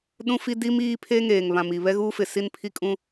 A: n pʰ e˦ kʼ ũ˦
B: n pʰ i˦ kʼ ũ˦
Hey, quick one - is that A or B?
B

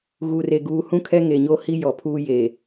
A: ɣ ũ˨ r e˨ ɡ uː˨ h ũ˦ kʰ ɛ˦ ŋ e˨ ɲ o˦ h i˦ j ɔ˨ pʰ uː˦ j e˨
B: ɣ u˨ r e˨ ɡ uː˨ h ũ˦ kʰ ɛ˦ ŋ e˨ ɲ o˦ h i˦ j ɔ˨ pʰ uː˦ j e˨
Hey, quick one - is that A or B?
B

